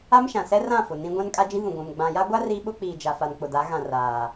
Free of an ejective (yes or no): no